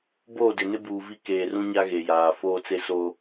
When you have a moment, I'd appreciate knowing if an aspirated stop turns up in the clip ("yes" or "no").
no